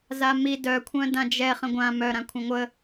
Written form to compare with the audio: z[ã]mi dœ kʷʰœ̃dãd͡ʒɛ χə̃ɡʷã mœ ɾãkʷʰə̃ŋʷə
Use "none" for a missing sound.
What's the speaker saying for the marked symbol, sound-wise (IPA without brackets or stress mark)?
a